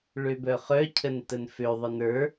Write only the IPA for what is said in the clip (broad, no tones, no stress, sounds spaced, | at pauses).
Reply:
ɭ ø b œ χ œ cʰ ə n t ə n f ø ðˤ ə n ə˞